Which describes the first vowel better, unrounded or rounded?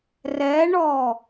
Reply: unrounded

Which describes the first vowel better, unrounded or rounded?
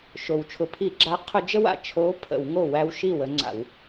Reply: rounded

